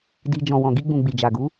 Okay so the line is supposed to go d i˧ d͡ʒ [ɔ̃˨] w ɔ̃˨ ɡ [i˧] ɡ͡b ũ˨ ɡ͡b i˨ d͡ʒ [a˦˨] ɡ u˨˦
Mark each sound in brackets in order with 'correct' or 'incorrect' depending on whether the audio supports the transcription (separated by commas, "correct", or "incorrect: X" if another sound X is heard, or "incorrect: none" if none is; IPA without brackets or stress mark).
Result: correct, correct, incorrect: a˨